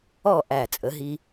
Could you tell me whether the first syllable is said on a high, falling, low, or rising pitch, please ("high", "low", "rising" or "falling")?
falling